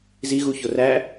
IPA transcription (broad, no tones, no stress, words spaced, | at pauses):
ziɣuço ræ